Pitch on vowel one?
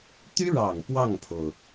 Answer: high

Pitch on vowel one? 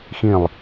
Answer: falling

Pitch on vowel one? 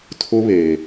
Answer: high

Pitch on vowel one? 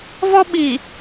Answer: high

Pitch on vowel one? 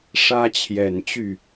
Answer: high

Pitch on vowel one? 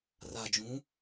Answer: low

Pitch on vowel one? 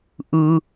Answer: low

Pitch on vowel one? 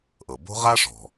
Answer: low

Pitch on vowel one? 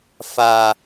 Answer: high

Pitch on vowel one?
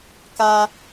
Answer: high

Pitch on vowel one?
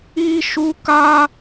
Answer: high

